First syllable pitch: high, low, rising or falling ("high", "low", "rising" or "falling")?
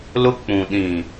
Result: high